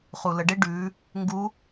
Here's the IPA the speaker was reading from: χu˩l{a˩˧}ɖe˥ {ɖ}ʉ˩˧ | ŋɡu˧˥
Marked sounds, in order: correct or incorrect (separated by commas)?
incorrect, correct